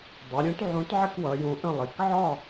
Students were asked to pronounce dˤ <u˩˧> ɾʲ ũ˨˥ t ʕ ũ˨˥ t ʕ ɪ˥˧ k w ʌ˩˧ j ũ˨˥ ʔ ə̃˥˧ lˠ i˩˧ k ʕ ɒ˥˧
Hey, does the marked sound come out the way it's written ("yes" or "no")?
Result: yes